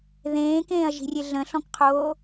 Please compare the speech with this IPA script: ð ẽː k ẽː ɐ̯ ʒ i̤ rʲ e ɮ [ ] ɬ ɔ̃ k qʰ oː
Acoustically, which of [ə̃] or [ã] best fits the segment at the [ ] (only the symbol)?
ə̃